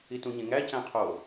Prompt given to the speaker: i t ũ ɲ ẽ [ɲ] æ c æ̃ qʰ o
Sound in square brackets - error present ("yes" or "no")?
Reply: yes